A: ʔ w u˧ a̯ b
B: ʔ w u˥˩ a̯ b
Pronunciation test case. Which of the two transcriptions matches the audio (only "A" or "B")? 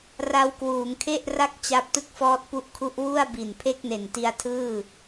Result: B